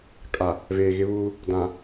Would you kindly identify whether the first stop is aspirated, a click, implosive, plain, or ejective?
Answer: ejective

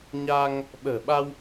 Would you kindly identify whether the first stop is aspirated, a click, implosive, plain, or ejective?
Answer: implosive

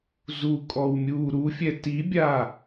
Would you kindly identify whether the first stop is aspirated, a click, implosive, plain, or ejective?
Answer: ejective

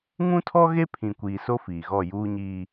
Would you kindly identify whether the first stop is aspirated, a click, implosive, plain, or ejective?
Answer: aspirated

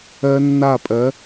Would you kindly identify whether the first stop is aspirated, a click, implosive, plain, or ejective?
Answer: ejective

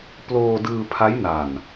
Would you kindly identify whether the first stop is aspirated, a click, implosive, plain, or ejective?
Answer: plain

